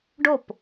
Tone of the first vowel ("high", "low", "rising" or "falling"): falling